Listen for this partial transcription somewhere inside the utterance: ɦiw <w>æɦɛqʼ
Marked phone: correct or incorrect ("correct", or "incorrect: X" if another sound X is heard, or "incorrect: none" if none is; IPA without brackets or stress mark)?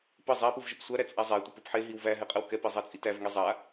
incorrect: v